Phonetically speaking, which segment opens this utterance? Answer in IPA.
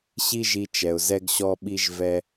ɕ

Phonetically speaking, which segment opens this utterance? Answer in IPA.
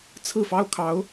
t͡sʰ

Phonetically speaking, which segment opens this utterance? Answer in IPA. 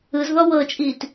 ɯ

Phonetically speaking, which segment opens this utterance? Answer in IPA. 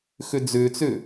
x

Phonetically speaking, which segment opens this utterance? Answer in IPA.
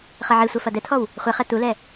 χ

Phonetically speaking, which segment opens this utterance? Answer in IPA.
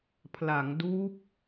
pʰ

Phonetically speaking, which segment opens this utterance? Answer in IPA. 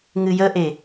ŋ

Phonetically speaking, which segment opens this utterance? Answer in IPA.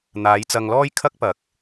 n̪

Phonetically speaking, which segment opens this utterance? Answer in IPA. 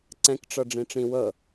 ǀ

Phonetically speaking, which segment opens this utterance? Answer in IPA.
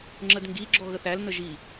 ŋ͡ǁ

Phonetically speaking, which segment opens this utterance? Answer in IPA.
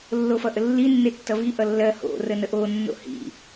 lː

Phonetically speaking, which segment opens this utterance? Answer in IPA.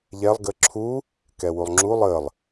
ʎ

